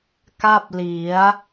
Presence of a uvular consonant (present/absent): absent